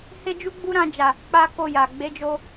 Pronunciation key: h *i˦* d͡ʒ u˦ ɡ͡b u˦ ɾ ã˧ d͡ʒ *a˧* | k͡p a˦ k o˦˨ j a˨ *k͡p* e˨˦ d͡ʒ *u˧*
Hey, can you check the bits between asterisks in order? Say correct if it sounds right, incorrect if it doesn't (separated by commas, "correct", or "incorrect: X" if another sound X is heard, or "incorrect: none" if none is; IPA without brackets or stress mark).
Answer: incorrect: e˦, incorrect: a˨, incorrect: ɡ͡b, incorrect: o˧